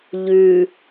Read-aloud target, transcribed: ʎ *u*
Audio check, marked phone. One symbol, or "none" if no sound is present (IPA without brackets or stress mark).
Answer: ʉ